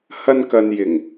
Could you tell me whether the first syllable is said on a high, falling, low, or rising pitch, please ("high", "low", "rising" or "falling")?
high